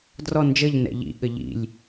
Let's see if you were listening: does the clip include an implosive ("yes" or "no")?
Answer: yes